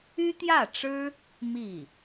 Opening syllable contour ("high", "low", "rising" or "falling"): high